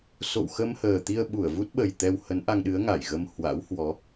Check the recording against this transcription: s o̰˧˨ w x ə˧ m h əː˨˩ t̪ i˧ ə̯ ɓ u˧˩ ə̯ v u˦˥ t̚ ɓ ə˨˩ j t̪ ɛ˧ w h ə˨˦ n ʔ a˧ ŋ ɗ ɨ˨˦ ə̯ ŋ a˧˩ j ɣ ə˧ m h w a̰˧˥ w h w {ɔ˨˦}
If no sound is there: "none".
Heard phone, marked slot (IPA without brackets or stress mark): ɔ˨˦